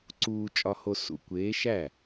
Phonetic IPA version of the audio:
ǀ uː˨ t͡ʃʼ ɒ˨ h o˨ s ṵ˨ kʷ eː˨˦ ʃ æ˥˩

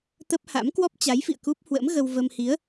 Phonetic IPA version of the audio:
t̪ ə˦˥ p̚ h a̰˧˥ m k w ɔ˦˥ p̚ t͡ɕ a˨˦ j f ḭ˧˨ ə̯ k u˦˥ p̚ h w ə̰˧˥ m ɣ ə˧ w v ə˧ m h i˨˦ ə̯

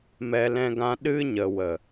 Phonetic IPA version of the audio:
m ɛ˧ l ɛ̃˧ ɡ ã˧ ɗ ɨ˦ ɲ ə˨ w ə˨

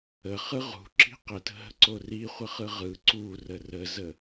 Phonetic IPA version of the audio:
ə χ ɯ ʁ ṳ ǁ i̤ q ə t ə̤ ɦ ə̤ ǀ o r i χʷ ə χ ɯ ʁ ɯ ǀ u r ə r ə z ə

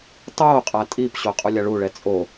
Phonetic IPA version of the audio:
tˤ oː qʼ a tʼ i p ɕ o qʼ u lʲ a ɭ u ɭ ɛ t͡sʼ o

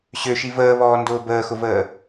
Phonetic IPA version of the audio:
ɕ ø ʃ i v əː β ɔː n d ʊː b əː x ʊ v əː

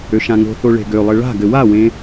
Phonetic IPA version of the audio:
ø ʃ ã ŋ o̤ θ o ɭ e̤ ɡ ø lˠ ɘ ɭ a̤ ɡ ɘ w a w ẽ

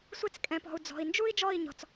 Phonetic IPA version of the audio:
sʷ e˧ t͡s kʼ ɛ̃˨ p ɔ̤˨ u̯ d͡z ɔ̤˨ i̯ n d͡ʒ u˦ i̯ d͡ʒ ɔ˦˨ i̯ ɲ ɔ̤˨ t͡s

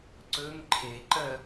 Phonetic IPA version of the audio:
ǀ ɵ ŋ ǃʰ e ǃ ɜ

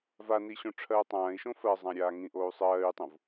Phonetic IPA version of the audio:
v a n i ɕ õ ʈ͡ʂʰ ɜː tˤ ãː i̯ ʃ õ f ɜ zˤ ã ɾʲ aː ŋ ĩ ʔ oː u̯ sˤ ɜː y̯ tˤ õ v

